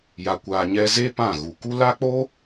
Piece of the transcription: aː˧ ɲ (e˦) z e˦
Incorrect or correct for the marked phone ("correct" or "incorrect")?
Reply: incorrect